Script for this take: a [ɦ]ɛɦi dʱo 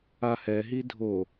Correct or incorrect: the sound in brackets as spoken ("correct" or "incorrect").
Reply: incorrect